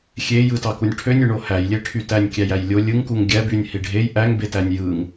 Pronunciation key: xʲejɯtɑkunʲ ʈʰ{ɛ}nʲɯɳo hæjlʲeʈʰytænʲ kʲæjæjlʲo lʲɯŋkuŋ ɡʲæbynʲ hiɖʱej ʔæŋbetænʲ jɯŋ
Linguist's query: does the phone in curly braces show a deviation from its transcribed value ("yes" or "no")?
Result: yes